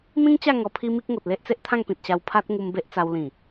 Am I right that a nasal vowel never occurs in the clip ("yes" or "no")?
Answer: no